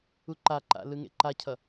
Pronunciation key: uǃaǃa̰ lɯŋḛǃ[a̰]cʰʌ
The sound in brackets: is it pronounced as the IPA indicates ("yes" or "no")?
no